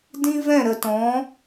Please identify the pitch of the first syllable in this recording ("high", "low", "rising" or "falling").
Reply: high